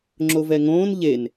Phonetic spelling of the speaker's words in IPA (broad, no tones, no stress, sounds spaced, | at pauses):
ŋ͡ǁ o v ɛ ŋ õː n ʎ e n